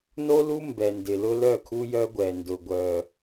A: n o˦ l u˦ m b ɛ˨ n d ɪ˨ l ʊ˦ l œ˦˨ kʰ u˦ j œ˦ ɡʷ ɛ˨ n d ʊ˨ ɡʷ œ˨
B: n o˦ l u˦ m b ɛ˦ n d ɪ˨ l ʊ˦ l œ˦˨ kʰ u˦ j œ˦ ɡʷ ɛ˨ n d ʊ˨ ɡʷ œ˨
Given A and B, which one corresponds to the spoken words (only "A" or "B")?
A